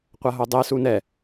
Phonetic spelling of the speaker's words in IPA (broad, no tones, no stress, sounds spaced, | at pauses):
qʷ a ɦ o dˤ e s u n ɛ